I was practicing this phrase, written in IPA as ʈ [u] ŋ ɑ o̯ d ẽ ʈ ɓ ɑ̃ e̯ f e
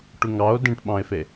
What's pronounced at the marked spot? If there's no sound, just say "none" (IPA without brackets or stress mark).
u